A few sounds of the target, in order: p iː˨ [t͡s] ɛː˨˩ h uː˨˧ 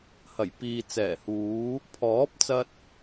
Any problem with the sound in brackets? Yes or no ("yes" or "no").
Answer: no